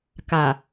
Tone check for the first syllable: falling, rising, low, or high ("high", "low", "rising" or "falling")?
low